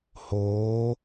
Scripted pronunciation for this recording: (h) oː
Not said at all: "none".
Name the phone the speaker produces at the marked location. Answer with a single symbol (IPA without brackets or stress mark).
h